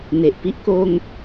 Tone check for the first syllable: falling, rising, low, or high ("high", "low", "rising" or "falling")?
low